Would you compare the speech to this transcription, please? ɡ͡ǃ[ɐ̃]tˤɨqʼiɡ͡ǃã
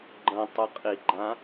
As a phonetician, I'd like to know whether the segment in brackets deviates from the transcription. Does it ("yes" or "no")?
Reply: no